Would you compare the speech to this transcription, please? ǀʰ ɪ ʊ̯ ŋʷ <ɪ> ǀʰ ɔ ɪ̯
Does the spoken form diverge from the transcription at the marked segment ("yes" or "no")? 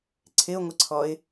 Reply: no